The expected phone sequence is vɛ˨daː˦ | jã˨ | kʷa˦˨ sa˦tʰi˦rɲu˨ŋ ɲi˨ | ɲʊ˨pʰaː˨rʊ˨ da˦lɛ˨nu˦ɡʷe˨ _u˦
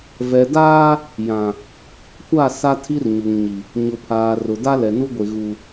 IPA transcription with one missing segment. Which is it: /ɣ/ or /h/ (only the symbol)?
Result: ɣ